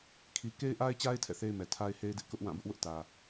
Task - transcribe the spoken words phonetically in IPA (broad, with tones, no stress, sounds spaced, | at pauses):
kʰ i˨ k e˦ ɪ̯ ʔ a˦ ɪ̯ t͡ɕ a˦ ɪ̯ tʰ ɛ̰˦˨ θ e˦ ɪ̯ m ɛ˨ tʰ a˦ ɪ̯ h e˦ ɪ̯ d ɪ˦ ʔ k ʊ˦ ʔ w ã˦˨ b ʊ˦ ʔ w ʊ˦ ʔ t ä˨